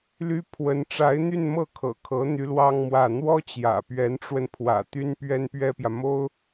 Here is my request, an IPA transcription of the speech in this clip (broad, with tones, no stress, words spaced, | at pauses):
ly˥ pʰwə˧˥n ʈ͡ʂa˧˥ɪ̯n̪y˥˧nmɤ˥˩kʰɤ̰˨˩ kʰɤ˧˥ n̪y˧˥lwɑ˥ŋmwä˥˩ n̪wɔ˥t͡ɕjä̰˨˩ pɥɛ˧˥nʈ͡ʂwə˧npʰwä̰˨˩ t̪y˥npɥɛ˥n pɥɛ˥pjä˨ mo˥ʊ̯